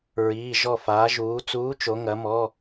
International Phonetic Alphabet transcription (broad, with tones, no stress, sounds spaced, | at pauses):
ɹ iː˩˧˩ ʒ ɔ˧˩ f aː˩˧ ʒ uː˩˧ t͡s uː˨˥ t͡ʃ o˩˧ ŋ ɐ˩˧ m ɔ˩˧˩